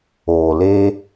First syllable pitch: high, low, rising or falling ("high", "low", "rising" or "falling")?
low